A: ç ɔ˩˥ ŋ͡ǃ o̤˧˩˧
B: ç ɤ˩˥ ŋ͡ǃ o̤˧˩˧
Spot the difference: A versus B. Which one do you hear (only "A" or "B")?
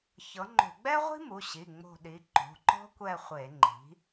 B